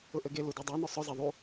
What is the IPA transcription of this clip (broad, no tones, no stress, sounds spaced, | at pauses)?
ʊ ʔ ɘ ɡ e l u d e dˤ e n ʊ sˤ ʊ z e ðˤ u